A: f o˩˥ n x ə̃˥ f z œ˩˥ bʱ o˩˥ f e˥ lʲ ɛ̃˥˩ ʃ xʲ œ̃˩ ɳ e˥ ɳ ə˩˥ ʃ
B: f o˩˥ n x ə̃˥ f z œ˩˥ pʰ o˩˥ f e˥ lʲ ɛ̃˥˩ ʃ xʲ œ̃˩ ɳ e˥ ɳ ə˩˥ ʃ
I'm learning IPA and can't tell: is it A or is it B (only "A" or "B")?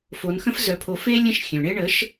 B